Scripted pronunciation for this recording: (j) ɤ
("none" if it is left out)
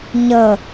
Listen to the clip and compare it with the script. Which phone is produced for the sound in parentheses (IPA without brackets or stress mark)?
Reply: ɲ